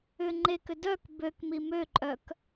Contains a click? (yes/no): yes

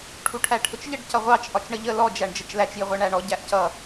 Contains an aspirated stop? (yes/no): yes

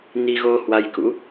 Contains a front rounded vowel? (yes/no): no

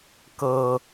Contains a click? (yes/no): no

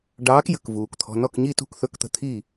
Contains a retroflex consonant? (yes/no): yes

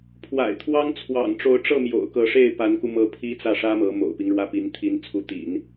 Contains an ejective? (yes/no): no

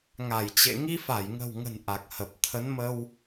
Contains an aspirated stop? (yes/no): yes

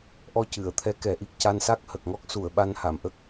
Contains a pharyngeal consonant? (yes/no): no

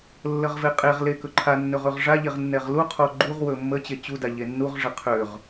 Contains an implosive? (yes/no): no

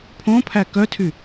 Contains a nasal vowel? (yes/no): yes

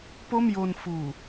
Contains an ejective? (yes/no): no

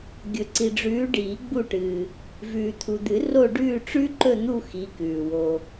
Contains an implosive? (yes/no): no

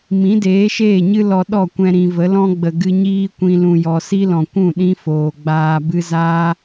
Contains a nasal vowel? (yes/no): yes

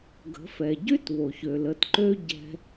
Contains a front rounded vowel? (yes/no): yes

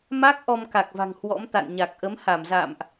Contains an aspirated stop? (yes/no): no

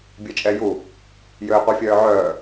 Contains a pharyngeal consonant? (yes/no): yes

